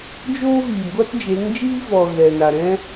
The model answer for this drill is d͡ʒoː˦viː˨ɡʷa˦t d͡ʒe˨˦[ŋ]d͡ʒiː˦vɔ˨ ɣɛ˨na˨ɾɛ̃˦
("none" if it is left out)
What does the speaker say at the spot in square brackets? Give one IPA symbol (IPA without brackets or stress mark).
ŋ